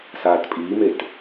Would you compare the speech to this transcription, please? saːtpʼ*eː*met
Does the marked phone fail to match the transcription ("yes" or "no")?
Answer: yes